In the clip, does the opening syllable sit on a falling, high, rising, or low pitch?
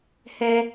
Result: high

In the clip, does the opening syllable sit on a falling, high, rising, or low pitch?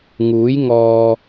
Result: rising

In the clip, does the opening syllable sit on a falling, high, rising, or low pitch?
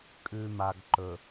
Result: low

